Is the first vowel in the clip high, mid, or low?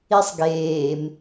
high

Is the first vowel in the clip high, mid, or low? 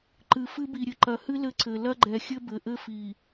high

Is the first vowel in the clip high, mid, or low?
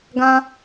low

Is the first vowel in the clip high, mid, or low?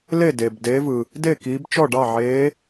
mid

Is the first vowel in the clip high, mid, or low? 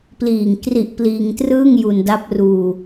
high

